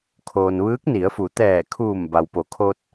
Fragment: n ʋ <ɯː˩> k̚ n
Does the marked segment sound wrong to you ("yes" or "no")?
yes